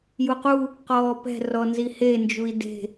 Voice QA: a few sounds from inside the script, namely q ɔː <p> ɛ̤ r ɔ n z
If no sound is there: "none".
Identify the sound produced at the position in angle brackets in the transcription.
p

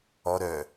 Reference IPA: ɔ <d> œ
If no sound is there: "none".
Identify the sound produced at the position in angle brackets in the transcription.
ɾ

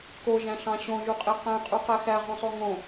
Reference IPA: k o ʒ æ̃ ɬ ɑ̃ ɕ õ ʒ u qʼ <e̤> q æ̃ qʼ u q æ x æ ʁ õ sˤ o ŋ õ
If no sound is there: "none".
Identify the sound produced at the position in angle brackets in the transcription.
e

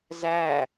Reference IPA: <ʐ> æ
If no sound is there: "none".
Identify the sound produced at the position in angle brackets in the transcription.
z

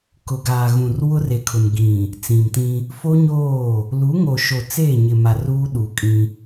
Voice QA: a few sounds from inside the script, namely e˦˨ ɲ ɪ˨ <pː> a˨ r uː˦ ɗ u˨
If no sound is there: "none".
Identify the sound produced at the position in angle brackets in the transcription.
m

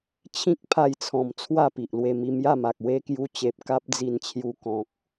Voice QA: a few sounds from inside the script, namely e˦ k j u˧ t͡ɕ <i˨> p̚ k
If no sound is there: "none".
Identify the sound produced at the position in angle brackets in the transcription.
e˨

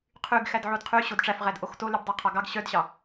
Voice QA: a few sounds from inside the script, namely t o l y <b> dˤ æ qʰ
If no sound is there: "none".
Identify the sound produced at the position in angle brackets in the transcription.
b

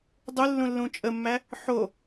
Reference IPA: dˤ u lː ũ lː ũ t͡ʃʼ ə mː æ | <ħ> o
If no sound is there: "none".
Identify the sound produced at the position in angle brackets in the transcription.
ħ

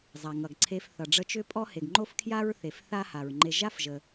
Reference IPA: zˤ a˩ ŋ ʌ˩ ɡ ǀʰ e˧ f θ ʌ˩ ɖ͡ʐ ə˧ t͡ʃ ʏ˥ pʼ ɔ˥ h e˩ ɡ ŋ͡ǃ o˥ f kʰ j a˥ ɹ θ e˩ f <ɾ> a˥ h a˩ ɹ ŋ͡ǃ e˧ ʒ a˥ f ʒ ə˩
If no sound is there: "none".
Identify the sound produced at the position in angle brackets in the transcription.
θ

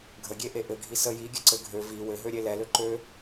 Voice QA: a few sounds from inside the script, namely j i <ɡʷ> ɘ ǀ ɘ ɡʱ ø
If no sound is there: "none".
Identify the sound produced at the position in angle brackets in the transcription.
ɡʲ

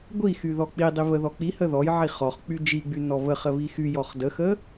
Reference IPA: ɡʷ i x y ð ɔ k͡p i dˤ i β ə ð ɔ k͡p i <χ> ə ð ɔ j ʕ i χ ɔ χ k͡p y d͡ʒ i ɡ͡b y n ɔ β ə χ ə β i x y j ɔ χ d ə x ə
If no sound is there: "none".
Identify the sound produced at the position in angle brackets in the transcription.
h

